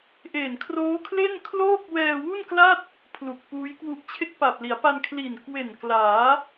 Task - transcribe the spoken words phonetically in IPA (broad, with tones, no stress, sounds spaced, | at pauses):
ʔ eː˨˩ n kʰ r oː˦˥ kʰ l e˥˩ n kʰ l oː˥˩ k̚ w ɛː˧ w u˥˩ n k l a˥˩ t̚ | pʰ l u˨˩ k̚ p uː˦˥ j k w u˦˥ ʔ t͡ɕʰ e˥˩ k̚ p a˨˩ p̚ l i˩˦ a̯ p a˧ n kʰ l i˨˩ n k w e˨˩ n k l aː˩˦